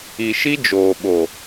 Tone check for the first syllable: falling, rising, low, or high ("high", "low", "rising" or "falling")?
low